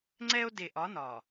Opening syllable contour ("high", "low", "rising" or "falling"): high